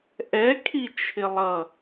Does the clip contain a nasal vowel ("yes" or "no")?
no